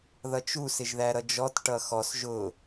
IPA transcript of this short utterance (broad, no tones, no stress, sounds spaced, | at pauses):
ð ʌ t͡ʃ u s ɪ ʒ ð æ ɾ ʌ d͡ʒ ɔ t ʈ ʌ x ɔ s ʒ ʊ